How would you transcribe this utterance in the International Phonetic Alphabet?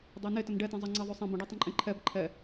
dˤɛne tənɖɛtẽ zˤəŋ͡ǀeðˤʉ sˤẽ bə̃ɖɛ tˤə̃ǃʼẽǃʰɛb ǃʰɛ

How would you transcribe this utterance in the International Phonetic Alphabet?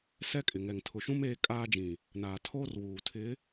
sɛ˦kʼɪ˨ŋɛ˨ŋ tʰʊ˨ʃũ˦m eː˦kʼaː˦d͡ʒĩ˨ | naː˨tʰoː˦rwuː˨ tʰɪ˨˦

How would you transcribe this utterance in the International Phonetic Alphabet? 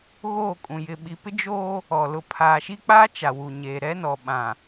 ɣoː˦˨kʼũ˨ jɪ˨ɓi˨pɪ˦ d͡ʒoː˦ | ɔ˨ lʊ˨pʰaː˨ʃi˦k͡paː˦ t͡ʃa˨ wu˨ ɲeː˨ ɾɛ˦nɔ˨ɓã˨

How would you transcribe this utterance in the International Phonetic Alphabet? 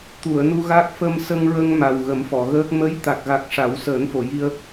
t̪u˨˩˨ə̯nu˧ɣa˦˥k̚ fə˧m sə˧ŋɹə˧ŋ ma˨˩wɣə˨˩˦mfɔ˨˩˨ɣəː˦˥k̚ mə˧˥jt̪a˨˩k̚ɣa˨˩k̚ ʂa˨˩˦wsəː˨˩˦nfo˨˩˨ ji˧ə̯

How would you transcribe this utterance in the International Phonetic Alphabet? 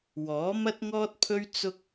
wɔː˨˥mɐ˥t̚ŋɔː˥t̚pʰɵ˥ɥ t͡sʊ˥k̚

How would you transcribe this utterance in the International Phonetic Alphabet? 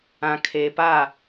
ã˨kʰeː˨pa˦˨

